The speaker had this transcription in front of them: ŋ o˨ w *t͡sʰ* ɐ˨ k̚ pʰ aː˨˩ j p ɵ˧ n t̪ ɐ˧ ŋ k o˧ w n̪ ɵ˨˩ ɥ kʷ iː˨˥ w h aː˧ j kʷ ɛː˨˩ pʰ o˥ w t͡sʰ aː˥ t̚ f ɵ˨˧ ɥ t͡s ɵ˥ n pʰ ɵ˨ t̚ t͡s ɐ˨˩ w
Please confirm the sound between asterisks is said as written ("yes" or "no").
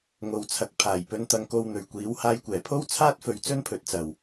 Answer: yes